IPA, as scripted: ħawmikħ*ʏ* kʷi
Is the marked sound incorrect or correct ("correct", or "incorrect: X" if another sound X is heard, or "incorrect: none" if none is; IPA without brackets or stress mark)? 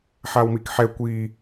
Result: incorrect: ɛ